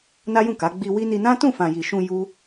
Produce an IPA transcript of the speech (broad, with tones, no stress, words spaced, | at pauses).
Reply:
na˦jũ˦˨ka˨˦ ɡ͡bi˧wi˦ni˧ nã˦tũ˦˨ fã˨ji˨ʃũ˧ ju˦